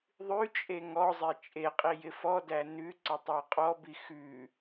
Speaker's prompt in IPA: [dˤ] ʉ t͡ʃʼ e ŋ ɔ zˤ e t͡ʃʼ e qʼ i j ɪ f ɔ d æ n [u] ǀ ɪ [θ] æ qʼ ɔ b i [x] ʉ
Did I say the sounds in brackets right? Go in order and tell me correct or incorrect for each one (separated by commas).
incorrect, incorrect, incorrect, correct